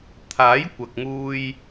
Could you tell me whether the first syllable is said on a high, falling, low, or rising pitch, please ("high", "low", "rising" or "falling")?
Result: rising